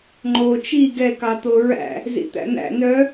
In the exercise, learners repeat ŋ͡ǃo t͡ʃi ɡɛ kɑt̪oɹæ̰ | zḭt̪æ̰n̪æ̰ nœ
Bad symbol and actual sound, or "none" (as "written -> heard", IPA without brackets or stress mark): none